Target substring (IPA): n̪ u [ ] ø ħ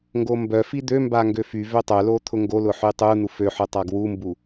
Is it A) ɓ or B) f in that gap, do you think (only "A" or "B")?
B